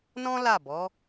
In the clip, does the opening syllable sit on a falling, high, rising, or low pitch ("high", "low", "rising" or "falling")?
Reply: high